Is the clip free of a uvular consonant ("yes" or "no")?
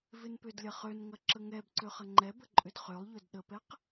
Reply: no